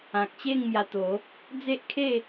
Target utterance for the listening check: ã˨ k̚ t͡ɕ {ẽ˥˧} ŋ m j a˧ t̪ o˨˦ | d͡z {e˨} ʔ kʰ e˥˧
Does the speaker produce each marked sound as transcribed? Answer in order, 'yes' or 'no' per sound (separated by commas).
no, no